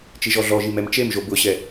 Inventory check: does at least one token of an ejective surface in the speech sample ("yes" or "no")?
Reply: no